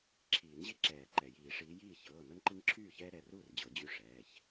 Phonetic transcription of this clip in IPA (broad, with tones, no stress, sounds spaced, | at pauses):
ǁʰ iː˨˩˦ n ʑ i˦ ǁ ɛː˨˩˦ ǃ ɛ˩ j iː˨˩˦ ʂ iː˨˦ j iː˥˩ ç ɤː˩˧˩ n ɤ˦ n ǃ i˦ ŋ ǁʰ yː˥˩ ç ɛː˦ ɾ ɛ˩˧˩ r uː˥˩ r d͡ʑ ɤ˨˩˦ d͡ʑ y˦ ʂ ɛː˩˧˩ ç